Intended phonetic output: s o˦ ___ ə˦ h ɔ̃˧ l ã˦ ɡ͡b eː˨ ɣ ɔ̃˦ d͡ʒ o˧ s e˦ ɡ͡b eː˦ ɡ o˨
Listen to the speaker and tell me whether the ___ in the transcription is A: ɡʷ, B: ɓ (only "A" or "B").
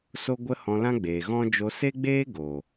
A